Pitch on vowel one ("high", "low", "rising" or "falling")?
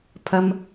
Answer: high